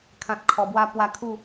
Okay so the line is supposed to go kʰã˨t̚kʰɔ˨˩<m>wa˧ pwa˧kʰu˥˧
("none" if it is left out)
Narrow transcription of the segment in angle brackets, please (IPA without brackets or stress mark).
b